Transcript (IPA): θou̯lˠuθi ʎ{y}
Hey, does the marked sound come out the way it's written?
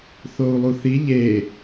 no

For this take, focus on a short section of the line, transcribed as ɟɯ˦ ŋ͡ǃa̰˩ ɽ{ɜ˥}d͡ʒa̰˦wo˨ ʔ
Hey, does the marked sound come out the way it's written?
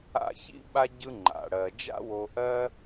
no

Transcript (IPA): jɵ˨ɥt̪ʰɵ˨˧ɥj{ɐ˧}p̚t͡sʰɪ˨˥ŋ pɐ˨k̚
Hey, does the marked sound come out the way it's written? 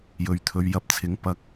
yes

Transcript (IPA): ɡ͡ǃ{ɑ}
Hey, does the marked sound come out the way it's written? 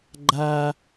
no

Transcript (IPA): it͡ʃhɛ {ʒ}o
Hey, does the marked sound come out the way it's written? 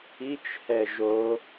yes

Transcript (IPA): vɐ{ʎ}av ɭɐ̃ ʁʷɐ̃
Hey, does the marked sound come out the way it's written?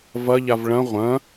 yes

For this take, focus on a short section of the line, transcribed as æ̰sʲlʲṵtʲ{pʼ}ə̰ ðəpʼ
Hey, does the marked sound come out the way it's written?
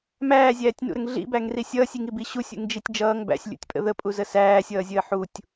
yes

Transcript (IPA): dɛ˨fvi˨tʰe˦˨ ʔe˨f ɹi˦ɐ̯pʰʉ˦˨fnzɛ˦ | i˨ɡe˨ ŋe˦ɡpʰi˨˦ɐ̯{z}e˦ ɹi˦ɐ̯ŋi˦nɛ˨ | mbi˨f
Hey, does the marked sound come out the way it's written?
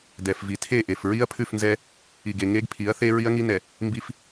no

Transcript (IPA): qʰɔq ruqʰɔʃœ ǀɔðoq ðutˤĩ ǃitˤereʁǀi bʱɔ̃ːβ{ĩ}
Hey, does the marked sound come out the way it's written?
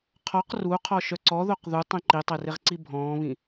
yes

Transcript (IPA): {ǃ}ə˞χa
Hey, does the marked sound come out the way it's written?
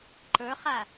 yes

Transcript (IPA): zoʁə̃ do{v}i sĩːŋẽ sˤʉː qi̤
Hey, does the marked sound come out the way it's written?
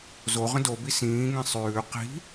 no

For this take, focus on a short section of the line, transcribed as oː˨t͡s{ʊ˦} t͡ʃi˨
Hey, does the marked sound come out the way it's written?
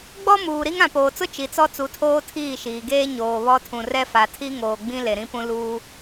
yes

